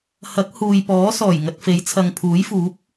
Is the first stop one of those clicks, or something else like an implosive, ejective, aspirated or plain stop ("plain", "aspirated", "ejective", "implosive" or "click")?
plain